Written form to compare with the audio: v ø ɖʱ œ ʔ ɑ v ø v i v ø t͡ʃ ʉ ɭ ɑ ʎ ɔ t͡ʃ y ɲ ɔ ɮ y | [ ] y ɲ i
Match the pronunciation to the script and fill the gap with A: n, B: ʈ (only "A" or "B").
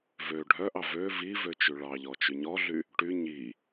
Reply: B